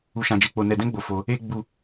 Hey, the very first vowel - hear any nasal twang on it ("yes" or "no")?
no